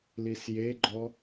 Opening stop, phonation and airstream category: click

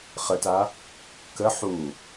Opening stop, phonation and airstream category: plain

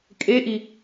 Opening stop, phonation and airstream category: ejective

